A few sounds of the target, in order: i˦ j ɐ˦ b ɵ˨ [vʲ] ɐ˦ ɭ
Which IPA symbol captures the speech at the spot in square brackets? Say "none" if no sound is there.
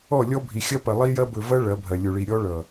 v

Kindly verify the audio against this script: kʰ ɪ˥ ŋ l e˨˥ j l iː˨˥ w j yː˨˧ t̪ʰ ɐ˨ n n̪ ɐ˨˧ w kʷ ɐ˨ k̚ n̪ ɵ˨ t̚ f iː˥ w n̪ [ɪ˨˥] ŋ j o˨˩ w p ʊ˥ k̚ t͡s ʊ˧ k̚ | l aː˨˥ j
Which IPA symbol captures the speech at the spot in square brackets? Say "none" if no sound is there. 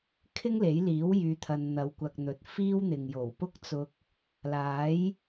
ɪ˨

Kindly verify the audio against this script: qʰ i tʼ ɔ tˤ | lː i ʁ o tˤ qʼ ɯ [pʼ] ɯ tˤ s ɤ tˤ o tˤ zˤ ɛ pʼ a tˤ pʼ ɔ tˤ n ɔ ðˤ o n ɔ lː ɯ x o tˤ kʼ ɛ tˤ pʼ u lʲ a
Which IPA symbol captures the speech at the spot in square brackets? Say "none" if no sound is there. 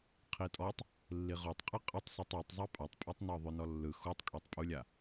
qʼ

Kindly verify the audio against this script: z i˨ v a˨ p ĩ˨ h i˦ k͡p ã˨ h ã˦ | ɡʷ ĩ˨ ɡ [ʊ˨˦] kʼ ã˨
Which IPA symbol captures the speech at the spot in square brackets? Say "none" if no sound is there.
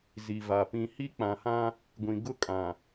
ʊ˦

